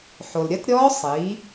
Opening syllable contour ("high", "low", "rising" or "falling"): low